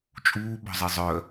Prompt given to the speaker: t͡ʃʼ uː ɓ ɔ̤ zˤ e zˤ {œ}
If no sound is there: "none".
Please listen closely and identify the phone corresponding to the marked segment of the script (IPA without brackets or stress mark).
œ